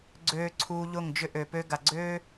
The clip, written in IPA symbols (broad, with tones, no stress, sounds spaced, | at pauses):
ɡ͡ǀ øː˧ ǀʰ uː˧ ʎ ʊ˦˨ ŋ d͡ʒ ʏ˦ ʔ ø˨ p ø˦ ɡ a˨ ɡ͡ǀ øː˦